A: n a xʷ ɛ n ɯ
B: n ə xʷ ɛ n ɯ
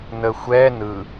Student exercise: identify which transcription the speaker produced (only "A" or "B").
B